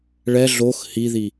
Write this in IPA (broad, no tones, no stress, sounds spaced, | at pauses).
ɭ ɛ ɮ o x h i ð i